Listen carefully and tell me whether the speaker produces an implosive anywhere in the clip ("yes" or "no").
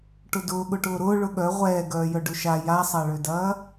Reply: yes